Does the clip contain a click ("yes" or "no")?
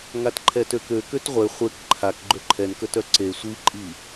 yes